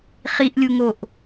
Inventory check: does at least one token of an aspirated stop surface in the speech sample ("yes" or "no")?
no